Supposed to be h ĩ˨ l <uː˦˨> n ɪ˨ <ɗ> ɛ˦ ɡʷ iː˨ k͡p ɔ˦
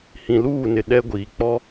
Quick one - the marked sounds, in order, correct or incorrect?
correct, correct

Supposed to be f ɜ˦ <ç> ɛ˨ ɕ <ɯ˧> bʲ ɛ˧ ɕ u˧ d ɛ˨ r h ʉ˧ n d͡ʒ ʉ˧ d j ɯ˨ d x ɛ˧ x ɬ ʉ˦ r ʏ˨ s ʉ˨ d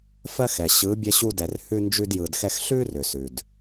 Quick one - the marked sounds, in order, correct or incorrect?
incorrect, incorrect

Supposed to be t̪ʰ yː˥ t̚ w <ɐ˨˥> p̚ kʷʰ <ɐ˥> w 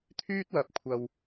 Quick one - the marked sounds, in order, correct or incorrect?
incorrect, incorrect

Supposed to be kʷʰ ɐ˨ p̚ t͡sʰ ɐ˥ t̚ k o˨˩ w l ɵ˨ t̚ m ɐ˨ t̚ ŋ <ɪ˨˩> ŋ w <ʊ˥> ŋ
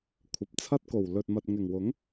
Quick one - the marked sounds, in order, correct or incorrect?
correct, incorrect

